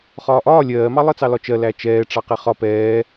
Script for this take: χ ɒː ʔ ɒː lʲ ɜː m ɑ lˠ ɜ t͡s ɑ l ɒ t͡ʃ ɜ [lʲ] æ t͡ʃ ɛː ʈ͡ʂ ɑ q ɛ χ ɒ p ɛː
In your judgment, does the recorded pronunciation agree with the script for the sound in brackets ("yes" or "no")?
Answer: no